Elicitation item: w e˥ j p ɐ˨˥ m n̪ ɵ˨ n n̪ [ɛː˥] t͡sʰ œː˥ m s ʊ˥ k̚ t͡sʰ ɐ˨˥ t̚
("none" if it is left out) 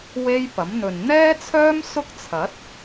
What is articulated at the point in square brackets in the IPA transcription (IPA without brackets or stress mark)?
ɛː˥